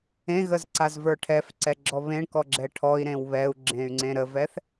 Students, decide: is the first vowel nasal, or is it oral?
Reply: nasal